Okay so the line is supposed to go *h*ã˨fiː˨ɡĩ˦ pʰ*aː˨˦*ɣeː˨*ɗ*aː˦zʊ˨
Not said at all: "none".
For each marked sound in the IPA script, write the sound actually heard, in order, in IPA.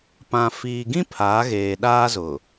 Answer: p, aː˨˦, ɗ

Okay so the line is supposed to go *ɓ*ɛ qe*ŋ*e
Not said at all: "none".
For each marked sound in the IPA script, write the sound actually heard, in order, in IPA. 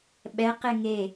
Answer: ɓ, ŋ

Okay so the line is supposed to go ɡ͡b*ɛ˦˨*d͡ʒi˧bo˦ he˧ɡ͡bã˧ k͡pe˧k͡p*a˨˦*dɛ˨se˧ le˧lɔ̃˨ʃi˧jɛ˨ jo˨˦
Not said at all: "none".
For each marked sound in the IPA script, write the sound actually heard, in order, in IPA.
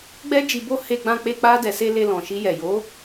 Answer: ɛ˦, a˧

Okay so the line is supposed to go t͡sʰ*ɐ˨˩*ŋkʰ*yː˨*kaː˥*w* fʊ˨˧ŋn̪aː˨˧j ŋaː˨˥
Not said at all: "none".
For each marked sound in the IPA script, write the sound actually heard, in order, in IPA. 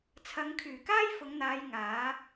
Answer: ɐ˨˧, yː˨˩, j

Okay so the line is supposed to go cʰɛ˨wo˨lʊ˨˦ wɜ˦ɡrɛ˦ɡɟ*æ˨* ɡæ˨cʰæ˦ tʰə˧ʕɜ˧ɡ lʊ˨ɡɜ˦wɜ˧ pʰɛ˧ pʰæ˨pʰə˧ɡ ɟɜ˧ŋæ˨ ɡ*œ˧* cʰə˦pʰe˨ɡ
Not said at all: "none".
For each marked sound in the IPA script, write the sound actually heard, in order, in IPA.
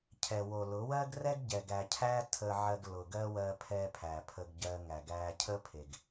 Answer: ɛ˨, æ˧

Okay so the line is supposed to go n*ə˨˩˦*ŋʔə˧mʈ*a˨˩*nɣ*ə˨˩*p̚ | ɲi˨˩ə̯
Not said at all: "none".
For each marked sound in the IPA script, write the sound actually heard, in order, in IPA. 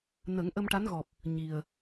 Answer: ə˨˩˦, a˧˥, ɔ˨˩

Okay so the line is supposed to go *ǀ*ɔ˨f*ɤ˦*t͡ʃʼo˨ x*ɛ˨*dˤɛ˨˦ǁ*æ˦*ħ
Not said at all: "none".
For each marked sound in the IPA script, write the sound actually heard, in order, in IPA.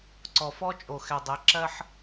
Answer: ǀ, ɔ˦, ɛ˨, ɜ˦

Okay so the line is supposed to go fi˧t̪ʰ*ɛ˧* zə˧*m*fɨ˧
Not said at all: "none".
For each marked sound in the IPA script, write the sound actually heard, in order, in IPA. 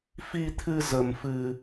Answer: ɨ˧, m

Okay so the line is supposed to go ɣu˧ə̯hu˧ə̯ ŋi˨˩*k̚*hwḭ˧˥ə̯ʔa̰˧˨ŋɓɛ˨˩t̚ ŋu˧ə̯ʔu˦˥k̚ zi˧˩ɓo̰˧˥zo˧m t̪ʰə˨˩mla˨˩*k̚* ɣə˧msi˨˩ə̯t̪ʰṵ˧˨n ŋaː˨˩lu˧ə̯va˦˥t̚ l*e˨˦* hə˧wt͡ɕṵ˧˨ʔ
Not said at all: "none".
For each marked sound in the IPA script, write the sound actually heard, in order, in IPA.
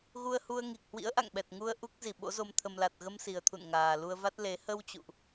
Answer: k̚, t̚, e˨˦

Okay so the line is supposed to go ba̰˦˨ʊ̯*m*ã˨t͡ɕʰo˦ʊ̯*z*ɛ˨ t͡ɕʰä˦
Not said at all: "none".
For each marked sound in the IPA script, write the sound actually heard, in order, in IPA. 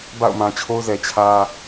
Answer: m, z

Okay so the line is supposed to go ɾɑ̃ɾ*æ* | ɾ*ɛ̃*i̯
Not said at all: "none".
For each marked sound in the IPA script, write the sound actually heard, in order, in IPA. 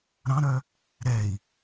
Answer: œ, ɛ

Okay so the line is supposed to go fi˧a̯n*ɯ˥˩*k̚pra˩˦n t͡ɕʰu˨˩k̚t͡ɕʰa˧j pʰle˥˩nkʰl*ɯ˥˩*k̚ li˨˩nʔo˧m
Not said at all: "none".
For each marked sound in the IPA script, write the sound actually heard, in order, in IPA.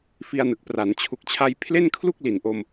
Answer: ɯ˨˩, u˥˩

